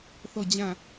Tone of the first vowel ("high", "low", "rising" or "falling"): falling